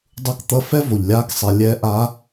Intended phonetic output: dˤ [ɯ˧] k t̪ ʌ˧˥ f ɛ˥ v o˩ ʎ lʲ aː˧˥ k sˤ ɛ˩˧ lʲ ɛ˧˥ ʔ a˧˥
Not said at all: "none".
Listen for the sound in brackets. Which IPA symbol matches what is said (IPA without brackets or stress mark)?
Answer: u˧